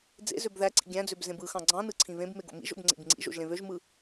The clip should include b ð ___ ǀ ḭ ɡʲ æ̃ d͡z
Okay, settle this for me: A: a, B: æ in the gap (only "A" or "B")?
B